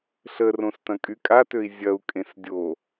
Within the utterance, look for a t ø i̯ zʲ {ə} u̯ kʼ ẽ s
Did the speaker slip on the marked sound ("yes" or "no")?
yes